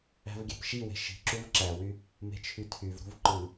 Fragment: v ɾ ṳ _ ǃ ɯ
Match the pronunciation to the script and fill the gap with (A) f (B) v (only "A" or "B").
B